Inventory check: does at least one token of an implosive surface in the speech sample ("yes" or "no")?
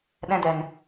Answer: yes